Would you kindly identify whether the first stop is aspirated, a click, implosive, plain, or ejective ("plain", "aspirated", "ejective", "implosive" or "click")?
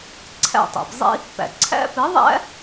click